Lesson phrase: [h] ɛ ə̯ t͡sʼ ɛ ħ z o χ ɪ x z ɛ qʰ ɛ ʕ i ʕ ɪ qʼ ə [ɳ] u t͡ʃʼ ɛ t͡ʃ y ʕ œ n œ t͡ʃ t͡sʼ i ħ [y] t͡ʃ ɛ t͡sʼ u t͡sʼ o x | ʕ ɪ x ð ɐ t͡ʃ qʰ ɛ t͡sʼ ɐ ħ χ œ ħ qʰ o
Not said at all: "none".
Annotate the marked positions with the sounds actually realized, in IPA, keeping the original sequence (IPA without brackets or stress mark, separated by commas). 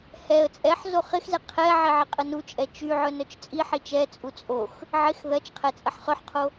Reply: h, n, i